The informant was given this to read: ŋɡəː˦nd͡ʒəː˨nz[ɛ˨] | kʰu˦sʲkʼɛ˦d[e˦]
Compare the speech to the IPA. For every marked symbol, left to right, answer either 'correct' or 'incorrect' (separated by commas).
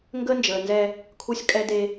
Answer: incorrect, correct